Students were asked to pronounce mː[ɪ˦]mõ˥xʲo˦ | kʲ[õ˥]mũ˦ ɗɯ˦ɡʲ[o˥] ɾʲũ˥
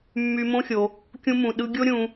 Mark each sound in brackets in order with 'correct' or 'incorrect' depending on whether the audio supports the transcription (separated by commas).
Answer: incorrect, incorrect, correct